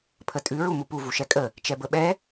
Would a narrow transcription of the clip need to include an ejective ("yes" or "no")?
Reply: yes